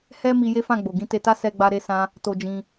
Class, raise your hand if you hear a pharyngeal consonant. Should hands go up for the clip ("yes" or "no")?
no